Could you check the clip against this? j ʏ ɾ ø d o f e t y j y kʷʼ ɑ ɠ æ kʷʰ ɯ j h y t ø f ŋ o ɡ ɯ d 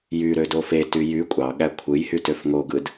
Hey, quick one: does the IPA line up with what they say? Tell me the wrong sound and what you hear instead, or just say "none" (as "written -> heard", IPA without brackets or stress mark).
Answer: ʏ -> y